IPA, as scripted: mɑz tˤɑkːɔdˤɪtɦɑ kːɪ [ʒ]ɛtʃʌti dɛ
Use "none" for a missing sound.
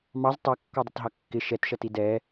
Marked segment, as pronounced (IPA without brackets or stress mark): ʃ